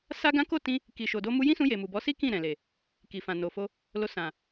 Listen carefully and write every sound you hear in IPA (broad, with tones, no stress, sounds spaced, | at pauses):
s a˦ ɡ ã˦ k o˦˨ t ĩ˧ | k i˨ ʃ o˨ d o˧ m u˧ j ĩ˦ s ũ˧ j e˨ m u˨ b ɔ˨˦ s i˦ k ĩ˦˨ ɾ ɛ̃˨ l e˨ | k i˨ f ã˨ n o˨ f o˧ | l o˧ s ã˨